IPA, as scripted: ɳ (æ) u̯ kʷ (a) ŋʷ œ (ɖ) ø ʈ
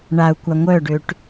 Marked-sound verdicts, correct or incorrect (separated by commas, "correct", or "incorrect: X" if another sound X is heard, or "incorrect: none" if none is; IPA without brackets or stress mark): incorrect: a, correct, correct